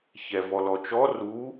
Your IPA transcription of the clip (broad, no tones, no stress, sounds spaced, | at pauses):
ç ɛ v ɔ l ɔ t͡ʃ ɔ r u